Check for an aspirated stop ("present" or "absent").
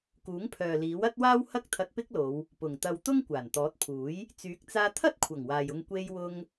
present